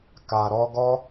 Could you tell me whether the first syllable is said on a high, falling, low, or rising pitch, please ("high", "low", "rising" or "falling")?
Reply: low